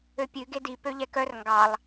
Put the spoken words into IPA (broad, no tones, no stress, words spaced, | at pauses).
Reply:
øpʲʉ ɡedi pøʎɛkœr ŋɡɑlˠ